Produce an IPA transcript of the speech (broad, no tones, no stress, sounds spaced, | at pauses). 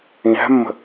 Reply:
ĩ ɦ æ̤ mː ə̤